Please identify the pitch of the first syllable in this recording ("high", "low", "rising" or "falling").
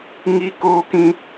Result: high